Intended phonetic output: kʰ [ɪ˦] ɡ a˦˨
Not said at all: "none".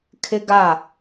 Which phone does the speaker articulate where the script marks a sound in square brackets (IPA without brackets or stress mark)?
ɪ˦